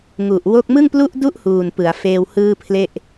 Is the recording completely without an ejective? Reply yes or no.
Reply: yes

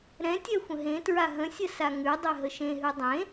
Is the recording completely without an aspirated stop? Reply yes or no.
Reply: yes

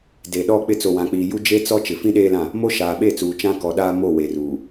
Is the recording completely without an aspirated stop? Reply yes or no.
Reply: yes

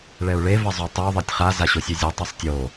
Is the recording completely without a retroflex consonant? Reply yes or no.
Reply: no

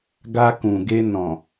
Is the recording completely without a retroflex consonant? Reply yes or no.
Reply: yes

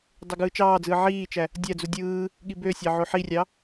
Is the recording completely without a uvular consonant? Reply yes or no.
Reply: yes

